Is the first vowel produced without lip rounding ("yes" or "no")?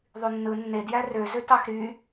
no